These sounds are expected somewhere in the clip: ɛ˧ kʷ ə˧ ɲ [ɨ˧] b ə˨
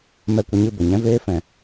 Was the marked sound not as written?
yes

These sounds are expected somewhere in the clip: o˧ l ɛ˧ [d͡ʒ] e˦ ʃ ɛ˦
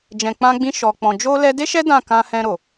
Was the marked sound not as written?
yes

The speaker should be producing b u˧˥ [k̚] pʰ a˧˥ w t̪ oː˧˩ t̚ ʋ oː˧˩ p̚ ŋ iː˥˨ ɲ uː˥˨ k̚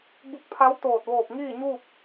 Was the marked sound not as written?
no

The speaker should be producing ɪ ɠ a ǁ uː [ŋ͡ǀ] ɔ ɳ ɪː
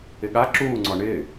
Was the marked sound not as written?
no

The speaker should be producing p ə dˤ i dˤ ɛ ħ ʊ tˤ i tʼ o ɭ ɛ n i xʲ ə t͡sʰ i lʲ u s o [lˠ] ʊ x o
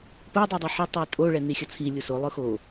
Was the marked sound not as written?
no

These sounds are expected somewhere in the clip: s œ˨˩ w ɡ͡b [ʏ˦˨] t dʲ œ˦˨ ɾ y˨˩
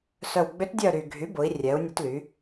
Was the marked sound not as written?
yes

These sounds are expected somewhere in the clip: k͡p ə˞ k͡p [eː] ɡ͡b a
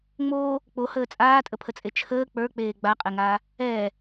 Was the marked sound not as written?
no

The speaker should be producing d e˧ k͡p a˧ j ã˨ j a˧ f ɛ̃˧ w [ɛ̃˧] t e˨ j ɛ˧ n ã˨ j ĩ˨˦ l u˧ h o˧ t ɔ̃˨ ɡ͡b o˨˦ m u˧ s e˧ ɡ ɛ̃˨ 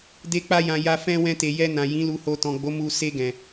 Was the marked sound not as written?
no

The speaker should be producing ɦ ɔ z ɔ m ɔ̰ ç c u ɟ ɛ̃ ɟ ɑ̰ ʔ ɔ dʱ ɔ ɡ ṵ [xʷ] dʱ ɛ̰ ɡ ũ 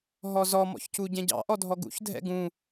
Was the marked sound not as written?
yes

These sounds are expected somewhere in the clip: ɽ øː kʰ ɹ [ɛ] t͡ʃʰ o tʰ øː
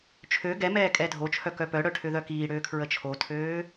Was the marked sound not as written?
yes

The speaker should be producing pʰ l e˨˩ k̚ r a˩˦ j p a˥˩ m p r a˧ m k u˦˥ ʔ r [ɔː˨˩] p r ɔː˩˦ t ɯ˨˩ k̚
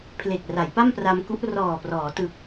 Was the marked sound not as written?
no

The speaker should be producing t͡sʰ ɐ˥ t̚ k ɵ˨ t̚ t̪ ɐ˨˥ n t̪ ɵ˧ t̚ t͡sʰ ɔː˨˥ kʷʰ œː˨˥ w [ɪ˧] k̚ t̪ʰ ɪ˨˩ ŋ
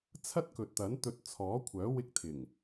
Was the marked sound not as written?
no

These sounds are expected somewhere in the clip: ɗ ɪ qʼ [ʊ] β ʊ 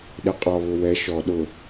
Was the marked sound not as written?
yes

